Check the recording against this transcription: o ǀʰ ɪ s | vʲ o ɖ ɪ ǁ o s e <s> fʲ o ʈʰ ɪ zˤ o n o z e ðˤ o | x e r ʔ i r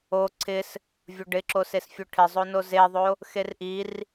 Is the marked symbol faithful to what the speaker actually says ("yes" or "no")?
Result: yes